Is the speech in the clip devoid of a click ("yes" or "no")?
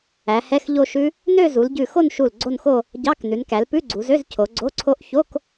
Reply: no